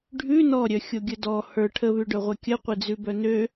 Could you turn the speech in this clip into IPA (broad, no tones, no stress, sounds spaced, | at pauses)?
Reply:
ɖʱ ʉ n ɔ ɾʲ œ xʲ o ɡʲ ə d ɔ h ə˞ ʈʰ ə β ʉ ɖ œ ʁʷ ɛ kʲ ə qʷ e d͡z ʉ b œ n ø